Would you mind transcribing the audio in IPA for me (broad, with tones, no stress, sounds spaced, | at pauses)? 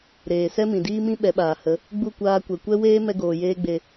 ɾ eː˨ s ɛ˦ m ĩ˨ d iː˦ m ĩ˦ ɓ ɛ˨˦ ɓ aː˨ h ə˨˦ | ɡ͡b u˦˨ kʷ aː˧ kʷ ɛ˨ kʷ ɛ˦ w eː˦ m ɛ˦ ɡ oː˨ j eː˦ ɡ͡b e˧